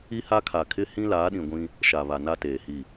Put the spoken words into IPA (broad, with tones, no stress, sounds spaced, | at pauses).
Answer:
i˦ h a˦ kʰ a˨ kʰ ɪ˦ h ĩ˦ l aː˨˦ ɗ ĩ˨ ɡʷ ĩ˦ | ʃ a˨ β a˨ n a˦ t eː˨ h i˦˨